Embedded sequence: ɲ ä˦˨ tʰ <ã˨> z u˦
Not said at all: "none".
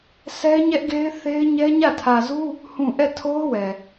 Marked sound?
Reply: ä˨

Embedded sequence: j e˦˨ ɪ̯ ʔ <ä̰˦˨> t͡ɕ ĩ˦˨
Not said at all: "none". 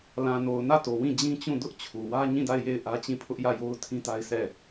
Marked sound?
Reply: ä˦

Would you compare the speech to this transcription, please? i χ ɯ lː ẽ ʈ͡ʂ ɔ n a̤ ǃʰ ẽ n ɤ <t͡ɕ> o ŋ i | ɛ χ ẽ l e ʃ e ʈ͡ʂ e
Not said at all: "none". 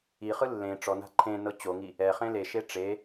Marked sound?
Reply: t͡ɕ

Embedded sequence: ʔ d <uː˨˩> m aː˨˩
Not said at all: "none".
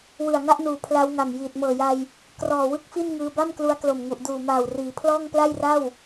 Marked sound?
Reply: uː˨˩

